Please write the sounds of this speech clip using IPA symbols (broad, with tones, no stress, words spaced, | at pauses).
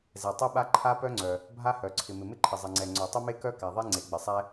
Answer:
zɛ˩tˤe˥ɓa˥ ǃʰa˥pœ˥ŋ͡ǀœ˩ | bʱa˥hœ˩ ǀʰɪ˩mɪ˩mɪ˥ ǃʰɪ˩zˤɪ˩ŋ͡ǀɛ˩ ŋ͡ǀœ˩tˤɪ˥me˥kœ˥ ka˩ðˤe˥ ŋ͡ǀe˩ɡ͡bɪ˩sˤɛ˥